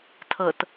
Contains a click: no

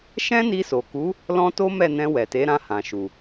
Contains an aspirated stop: no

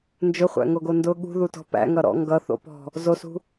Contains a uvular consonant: yes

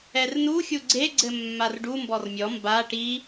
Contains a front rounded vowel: no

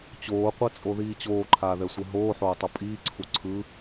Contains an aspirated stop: yes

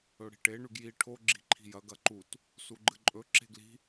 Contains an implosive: no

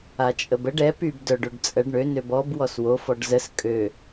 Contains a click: no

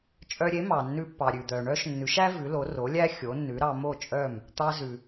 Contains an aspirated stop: no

